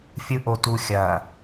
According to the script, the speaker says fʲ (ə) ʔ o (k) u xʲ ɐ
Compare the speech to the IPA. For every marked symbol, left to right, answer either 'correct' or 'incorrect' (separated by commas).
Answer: incorrect, incorrect